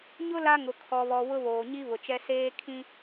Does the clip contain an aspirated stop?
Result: yes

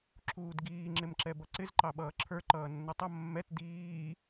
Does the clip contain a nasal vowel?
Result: no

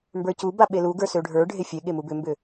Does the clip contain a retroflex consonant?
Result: yes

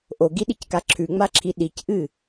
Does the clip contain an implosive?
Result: yes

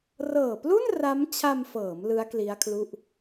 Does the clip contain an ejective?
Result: no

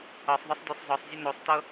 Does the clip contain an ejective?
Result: no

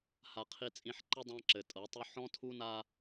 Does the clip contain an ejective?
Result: yes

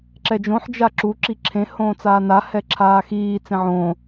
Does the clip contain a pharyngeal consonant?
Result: yes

